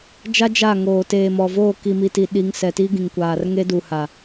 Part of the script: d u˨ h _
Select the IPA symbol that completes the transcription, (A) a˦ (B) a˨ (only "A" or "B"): B